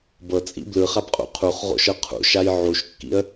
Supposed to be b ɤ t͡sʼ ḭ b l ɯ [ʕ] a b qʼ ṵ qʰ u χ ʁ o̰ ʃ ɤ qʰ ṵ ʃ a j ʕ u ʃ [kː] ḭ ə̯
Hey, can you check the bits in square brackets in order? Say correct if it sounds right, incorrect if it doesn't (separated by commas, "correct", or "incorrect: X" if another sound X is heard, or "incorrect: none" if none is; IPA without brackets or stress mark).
incorrect: χ, correct